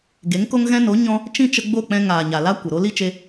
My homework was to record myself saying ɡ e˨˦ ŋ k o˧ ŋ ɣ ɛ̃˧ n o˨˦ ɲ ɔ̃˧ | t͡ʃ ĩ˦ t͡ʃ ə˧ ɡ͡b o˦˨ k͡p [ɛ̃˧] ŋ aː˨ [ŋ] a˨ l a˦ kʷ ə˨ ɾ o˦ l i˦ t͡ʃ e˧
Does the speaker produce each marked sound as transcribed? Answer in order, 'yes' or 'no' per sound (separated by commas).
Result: yes, no